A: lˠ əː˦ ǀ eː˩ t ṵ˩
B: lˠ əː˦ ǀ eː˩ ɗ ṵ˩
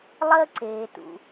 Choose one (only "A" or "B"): A